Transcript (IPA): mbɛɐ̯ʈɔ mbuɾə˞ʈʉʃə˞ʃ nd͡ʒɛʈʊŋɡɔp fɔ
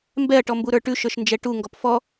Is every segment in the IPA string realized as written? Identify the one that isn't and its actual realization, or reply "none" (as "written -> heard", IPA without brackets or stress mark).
ʊ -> u